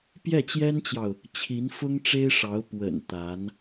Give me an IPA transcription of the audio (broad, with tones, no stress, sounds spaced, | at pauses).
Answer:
p j ɛ˥˩ t͡ɕ j ɛ˥ n t͡ɕ j ɑ˨ ʊ̯ | t͡ɕʰ i˧˥ n f ʊ˥ ŋ ʈ͡ʂ e˥ ɪ̯ ʂ ɑ˧˥ ʊ̯ p w ə̰˨˩ n t̪ a˧˥ n